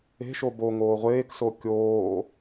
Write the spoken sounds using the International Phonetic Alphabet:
e̤ ʃ o b o ŋ oː ʁʷ eː k s o kʲ oː

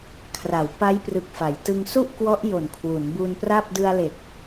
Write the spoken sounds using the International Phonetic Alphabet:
kʰ r a˩˦ w p a˦˥ j p r ɯ˨˩ k̚ f a˩˦ j t ɯ˧ ŋ s u˥˩ ʔ k w ɔ˦˥ ʔ j o˨˩ n kʰ w u˩˦ n b u˧ n p r a˥˩ p̚ d ɯ˧ a̯ l e˨˩ k̚

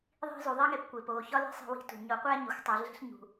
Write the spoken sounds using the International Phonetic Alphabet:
ðˤ i̤˧ z u˨ ðˤ i˦ ŋ e˧ p kʷ e˨ p o˨ ç ɒ˦ l i̤˦ sˤ i̤˧ w i̤˨˦ t ṳ˨ ɲ o˨˦ qʷ æ˦ ɲ i˨ xʷ tˤ u˨ ɮ e̤˦ ɬ ɲ ṳ˨

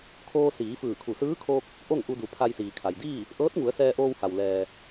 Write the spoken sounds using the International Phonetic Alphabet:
kʰ oː˧ s iː˩˧ f ɯː˧˩ kʰ u˧˩ s ɯː˧˥ kʰ oː˧ k̚ | ʔ o˥˨ ŋ ʔ u˧ d u˩ pʰ a˧ j s iː˩ kʰ a˩ j d iː˥˨ | ʔ ɤː˧˥ t̚ ŋ u˩˧ ə̯ s ɛː˧ ʔ oː˧ w h a˩ w l ɛː˩

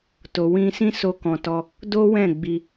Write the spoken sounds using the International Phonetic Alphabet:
t o˨ w ĩ˧ s ĩ˦ s o˧ k ɔ̃˨ t ɔ˧ | d o˦ w ɛ̃˦˨ ɡ͡b i˧

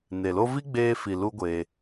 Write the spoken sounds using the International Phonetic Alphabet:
n e˨ l o˦ v i˦ ɡ͡b eː˧ f i˨ l u˦ ɡʷ e˧

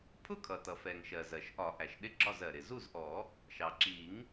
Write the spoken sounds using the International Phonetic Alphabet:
pʰ ʊ˥˨ kʰ ʌ˩ t ʌ˩ f ɛ˩ ŋ ʃ ɜ˩ z ɜ˩ ʃ ʔ ɒ˨˩˦ ʔ æ˩ ʃ ɗ ɪ˥˨ ɡ͡ǁ ɒ˥˨ z ɜ˩ ɾ ɪ˩ z u˥˨ z ʔ ɔ˨˩˦ | ʃ ɑ˩ ǁ i˨˩˦ ŋ

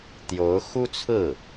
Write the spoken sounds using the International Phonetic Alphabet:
t̪ j o˧˥ ʊ̯ x u˥ t͡sʰ ɹ̩˥˩

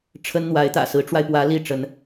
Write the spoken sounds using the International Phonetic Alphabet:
ʈ͡ʂʰ ə˥ n n̪ w a˧˥ ɪ̯ t̪ ä̰˨˩ s ɹ̩˧˥ ʈ͡ʂ w a˧ ɪ̯ p w ä˧˥ l i˥˩ ʈ͡ʂ ə˧˥ n

